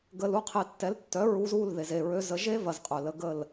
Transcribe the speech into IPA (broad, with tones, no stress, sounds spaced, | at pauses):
ɡ ə˨ l u˦˨ qʰ e˨ tː ɛ˨˦ l tː œ˨˦ ɹ u˧ z u˦˨ l ð e˨ z e˨ ɹ ø˧ z ə˧ ʒ e˦ v ɐ˨ z qʼ œ˨ l ə˧ ɡ ə˦˨ l